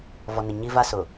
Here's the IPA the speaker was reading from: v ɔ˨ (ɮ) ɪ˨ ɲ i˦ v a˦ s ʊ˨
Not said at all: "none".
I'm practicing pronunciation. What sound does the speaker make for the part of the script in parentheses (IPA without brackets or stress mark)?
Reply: n